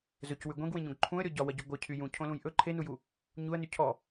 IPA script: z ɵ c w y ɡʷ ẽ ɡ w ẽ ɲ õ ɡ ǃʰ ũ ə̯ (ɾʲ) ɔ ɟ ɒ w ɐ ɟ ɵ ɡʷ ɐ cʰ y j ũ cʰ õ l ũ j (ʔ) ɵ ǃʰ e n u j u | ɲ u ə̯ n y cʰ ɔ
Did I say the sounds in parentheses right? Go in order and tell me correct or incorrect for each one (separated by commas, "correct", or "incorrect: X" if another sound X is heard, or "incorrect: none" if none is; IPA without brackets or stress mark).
correct, correct